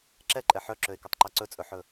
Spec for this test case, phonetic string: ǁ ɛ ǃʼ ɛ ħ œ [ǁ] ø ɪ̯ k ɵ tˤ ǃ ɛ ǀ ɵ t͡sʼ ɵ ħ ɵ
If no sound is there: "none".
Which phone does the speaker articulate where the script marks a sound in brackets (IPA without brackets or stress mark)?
ǁ